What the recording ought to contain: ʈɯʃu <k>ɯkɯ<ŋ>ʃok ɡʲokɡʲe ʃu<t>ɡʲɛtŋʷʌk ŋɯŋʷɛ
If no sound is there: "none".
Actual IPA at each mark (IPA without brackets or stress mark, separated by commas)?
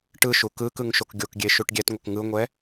k, ŋ, ʈ